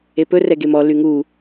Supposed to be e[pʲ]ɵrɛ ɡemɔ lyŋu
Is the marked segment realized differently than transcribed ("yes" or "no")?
yes